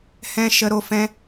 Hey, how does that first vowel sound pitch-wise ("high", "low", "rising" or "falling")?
high